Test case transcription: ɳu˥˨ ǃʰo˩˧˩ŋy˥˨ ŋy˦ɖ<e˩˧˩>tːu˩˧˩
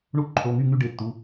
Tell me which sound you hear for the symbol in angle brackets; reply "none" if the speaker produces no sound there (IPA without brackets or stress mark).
e˩˧˩